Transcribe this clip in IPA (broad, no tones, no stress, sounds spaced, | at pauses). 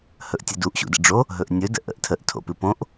h ɵ ʔ tʲ ɘ d u ʔ ɕ ṵ d ə̰ ɖ͡ʐ o | ɦ ɵ ʔ nʲ ɵ d ə̰ ʔ ə̰ ʔ tʰ ə ʔ tʰ o̰ p ɨ p õ ʔ